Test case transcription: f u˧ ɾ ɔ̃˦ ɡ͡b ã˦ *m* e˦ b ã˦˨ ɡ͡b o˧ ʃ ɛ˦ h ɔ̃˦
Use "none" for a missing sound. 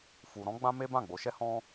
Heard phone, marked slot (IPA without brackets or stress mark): m